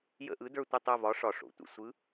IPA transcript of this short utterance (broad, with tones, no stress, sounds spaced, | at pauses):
j ə̰˦˨ ʔ ɯ˨˥ d ə˞˦˨ tʷ ə˦˨ tˤ œ˦˨ v ɒ˨˥ ʂ ɒ˨˩ ʂ o̰˨˩ tʷ ə̰˦˨ sʷ ɯ˨˥